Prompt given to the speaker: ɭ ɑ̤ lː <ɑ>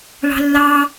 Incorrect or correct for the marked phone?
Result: correct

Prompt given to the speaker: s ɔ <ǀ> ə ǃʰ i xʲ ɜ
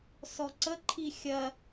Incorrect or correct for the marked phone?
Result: correct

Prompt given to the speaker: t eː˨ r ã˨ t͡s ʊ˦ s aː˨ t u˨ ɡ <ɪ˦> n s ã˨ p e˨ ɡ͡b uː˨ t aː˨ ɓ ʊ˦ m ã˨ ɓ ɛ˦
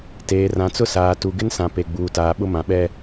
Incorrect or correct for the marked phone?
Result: correct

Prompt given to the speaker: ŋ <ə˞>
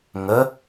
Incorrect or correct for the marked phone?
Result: incorrect: ə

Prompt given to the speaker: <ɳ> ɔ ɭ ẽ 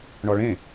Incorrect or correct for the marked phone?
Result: correct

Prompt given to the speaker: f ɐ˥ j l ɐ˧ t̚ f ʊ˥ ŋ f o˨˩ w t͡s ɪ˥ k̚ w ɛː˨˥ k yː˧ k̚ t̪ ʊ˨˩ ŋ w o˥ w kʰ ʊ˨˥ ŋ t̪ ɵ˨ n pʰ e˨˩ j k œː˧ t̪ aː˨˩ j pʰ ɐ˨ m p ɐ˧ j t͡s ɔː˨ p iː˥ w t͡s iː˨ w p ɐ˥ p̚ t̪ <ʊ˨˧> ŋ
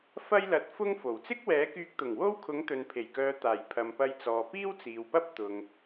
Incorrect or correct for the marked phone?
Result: incorrect: ʊ˨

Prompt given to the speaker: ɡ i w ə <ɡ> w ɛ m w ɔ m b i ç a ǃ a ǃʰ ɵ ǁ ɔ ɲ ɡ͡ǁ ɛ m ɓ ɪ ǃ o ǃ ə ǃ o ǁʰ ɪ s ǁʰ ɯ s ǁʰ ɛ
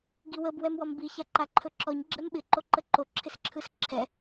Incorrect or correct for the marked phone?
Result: incorrect: b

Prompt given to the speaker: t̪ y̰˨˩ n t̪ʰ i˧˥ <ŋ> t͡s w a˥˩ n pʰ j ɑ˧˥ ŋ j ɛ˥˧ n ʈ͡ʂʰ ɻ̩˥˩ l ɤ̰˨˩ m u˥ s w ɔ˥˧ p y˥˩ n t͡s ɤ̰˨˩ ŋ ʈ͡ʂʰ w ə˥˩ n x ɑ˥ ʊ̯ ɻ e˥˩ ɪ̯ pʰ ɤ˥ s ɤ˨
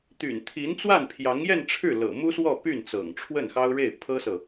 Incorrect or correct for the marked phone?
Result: incorrect: n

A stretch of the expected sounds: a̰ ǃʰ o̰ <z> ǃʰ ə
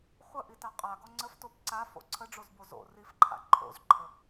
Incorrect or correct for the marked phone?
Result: correct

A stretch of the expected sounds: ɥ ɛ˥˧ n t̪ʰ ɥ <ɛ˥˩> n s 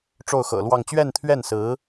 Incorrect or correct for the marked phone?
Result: correct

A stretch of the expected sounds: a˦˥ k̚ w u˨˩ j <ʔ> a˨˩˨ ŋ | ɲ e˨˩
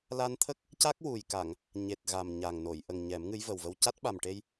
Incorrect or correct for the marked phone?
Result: incorrect: k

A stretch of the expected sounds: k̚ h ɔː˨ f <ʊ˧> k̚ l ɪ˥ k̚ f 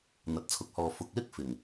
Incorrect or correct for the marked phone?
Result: incorrect: ʊ˨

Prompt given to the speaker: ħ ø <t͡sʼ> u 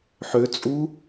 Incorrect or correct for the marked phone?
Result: correct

